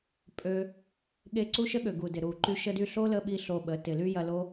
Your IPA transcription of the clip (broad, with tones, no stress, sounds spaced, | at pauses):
pʼ ø˧ | ɠ e˧ ǀ u˦ ʃ ə˦ ɠ ø˨ ɡ u˨ d ɪ˨ ɾ u˨ ǃ y˦ ʃ ə˧ d y˧ ɬ o˦ l ə˧ ɓ i˦ ɬ o˧ ɓ ə˨˦ t ɪ˨ l y˦ j ɐ˧ l o˦